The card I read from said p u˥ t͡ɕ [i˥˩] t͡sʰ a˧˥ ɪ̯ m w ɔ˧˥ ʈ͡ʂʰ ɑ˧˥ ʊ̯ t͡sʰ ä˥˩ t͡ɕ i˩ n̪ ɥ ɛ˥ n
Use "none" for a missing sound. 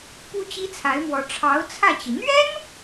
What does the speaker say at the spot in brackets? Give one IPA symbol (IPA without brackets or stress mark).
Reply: i˥